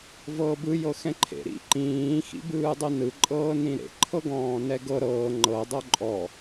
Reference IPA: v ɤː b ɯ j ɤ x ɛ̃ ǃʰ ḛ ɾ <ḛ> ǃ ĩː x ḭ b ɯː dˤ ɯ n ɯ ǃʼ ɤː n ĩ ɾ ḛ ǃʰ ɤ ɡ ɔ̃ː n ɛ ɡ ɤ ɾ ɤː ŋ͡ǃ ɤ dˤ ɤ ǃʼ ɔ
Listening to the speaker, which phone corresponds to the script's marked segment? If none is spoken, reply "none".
ḭ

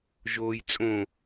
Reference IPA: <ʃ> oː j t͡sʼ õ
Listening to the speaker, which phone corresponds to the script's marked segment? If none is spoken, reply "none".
ʒ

